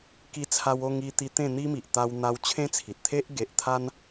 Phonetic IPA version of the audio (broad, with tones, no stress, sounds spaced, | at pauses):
k i˧ t͡sʰ a˧ w o˥˧ ŋ i˧ t̪ i˧ t̪ ẽ˥˧ n̪ i˦ m i˨ ʔ t̪ a˧ w n̪ a˧ w t͡ɕʰ ẽ˦ t͡sʰ i˨ t̚ t̪ʰ e˦ ʔ ɡ e˨ ʔ t̪ʰ a˦ n